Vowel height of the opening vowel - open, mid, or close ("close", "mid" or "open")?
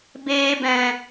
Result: mid